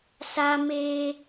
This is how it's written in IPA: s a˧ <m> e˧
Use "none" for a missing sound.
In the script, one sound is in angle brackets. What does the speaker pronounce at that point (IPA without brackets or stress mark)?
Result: m